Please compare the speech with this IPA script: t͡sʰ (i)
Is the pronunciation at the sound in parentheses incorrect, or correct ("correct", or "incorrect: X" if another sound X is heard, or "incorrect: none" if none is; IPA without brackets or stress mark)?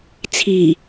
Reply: correct